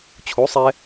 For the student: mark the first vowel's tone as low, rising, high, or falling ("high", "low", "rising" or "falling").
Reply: rising